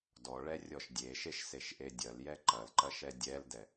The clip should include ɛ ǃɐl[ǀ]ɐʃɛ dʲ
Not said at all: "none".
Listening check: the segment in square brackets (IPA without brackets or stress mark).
ǃ